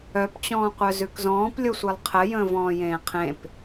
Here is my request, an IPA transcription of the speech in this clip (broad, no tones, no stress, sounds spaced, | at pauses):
œ p t͡ɕ ɔ̃ː qʷ œ z ʉ k z ɔ̃ː p lʲ o sʷ e lˠ qʰ ə j ə̃ː v ɔ̃ː j ẽː qʰ ẽ p